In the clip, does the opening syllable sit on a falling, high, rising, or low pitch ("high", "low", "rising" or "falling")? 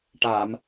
low